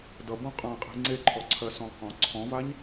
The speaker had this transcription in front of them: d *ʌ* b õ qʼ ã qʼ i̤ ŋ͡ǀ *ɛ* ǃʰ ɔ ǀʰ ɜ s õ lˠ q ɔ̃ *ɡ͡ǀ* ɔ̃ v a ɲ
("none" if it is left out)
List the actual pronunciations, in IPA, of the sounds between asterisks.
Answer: ʌ, e, ǀʰ

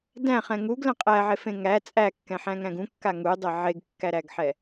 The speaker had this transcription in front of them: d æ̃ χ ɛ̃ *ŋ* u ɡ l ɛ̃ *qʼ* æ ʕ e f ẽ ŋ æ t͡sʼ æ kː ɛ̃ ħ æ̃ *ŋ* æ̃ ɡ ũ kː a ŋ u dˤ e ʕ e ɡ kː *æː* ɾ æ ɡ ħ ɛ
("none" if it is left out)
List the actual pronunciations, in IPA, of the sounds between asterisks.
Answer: ŋ, qʼ, ŋ, æ

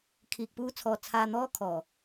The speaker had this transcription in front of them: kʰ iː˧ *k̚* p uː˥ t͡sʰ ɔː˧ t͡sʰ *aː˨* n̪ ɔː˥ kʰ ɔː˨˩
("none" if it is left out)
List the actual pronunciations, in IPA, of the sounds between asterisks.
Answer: k̚, aː˧

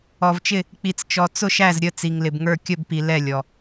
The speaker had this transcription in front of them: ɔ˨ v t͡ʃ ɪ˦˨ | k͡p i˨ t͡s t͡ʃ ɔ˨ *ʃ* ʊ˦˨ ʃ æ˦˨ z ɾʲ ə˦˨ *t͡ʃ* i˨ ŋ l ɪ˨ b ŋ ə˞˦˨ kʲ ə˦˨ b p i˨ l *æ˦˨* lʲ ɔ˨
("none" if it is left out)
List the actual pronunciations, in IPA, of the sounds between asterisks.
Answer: t͡s, t͡s, ɛ˦˨

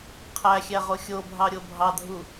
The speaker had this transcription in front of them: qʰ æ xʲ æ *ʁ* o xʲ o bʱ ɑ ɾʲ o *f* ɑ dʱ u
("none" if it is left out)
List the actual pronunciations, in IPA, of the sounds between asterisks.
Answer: ʁ, bʱ

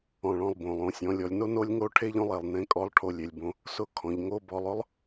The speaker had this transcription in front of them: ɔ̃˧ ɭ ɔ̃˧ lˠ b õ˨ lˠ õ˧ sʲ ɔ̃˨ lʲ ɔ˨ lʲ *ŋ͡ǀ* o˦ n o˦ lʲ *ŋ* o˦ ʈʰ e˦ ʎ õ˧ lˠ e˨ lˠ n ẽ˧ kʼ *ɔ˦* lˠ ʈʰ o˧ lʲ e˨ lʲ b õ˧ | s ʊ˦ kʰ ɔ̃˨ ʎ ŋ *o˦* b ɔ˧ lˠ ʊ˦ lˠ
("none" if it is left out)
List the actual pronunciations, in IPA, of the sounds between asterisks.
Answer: n, ŋ, ɔ˧, o˦

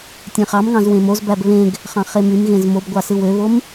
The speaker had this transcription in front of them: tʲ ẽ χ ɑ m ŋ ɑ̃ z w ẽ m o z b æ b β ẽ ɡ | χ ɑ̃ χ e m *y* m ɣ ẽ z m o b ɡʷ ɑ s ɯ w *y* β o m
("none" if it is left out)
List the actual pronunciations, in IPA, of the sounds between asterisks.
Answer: y, ø

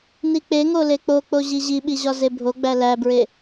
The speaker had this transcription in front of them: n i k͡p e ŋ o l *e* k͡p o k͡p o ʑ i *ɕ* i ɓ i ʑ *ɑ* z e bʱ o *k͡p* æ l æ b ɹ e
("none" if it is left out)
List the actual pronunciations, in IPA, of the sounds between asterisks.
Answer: e, ʑ, ɒ, ɡ͡b

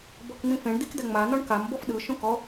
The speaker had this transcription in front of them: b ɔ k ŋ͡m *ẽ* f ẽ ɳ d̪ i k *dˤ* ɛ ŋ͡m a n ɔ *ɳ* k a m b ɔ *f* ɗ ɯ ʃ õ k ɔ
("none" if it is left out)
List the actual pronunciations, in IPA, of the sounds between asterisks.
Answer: ĩ, d̪, ɳ, f

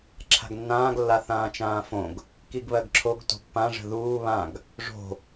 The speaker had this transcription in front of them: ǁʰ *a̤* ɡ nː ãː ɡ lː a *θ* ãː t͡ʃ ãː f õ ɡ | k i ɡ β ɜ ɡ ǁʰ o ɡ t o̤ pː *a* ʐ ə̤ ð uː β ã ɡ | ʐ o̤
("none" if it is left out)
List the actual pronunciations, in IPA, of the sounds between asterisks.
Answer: a̤, θ, ã

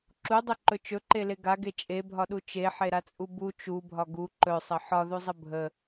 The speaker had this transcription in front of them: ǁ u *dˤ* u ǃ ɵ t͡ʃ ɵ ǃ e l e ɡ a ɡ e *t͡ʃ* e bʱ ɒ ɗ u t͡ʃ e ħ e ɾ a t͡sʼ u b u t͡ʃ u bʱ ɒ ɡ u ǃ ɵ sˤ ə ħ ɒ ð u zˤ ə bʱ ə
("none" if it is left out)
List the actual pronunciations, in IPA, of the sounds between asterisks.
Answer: dˤ, t͡ʃʼ

